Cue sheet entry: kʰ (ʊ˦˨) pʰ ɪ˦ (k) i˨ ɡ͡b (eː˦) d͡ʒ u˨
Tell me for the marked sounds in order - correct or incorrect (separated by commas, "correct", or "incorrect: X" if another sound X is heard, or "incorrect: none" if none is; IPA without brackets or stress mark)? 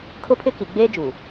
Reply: incorrect: ʊ˦, correct, correct